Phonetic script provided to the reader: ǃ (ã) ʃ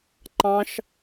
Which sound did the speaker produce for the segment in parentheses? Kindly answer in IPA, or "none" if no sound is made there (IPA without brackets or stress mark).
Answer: ɑ̃